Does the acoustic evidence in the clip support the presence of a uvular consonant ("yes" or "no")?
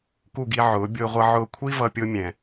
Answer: yes